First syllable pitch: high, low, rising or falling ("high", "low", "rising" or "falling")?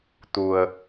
low